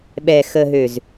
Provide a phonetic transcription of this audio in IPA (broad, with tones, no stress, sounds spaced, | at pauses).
ɓ ɛ˨ x ə˨ ɦ ø˨ z